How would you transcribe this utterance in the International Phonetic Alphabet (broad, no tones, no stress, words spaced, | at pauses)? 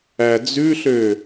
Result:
æd͡zʉɬø